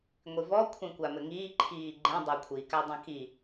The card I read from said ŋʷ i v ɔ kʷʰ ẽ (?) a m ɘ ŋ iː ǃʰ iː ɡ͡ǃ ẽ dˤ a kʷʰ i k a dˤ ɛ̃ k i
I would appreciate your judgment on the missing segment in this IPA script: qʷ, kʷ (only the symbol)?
kʷ